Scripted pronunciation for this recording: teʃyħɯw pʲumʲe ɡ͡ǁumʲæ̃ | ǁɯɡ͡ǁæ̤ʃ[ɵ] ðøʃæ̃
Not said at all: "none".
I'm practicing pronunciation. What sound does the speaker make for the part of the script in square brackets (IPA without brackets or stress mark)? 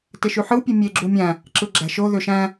o